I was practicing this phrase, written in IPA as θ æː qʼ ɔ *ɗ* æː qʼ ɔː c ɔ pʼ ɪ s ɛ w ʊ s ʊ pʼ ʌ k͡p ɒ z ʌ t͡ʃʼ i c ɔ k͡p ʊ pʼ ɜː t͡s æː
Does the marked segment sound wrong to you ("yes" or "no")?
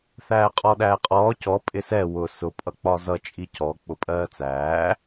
no